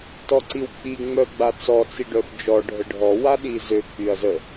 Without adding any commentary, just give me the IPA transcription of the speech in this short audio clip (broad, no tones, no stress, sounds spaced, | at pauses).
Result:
t ɔ ǀ i w k͡p i ŋ͡m œ ɡ͡b a t͡s ɔ t͡s i ɖ œ f d͡ʒ ɔ ɖʱ ə ɖʱ ɔ w a ɗ i z ø k͡p y ɐ̯ z ə